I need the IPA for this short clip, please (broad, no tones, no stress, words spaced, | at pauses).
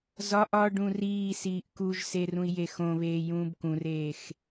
zɒʔ ɒ ɖũriːsiːʔ kuʒse rũi̯jexõβeː jũːbkũreːx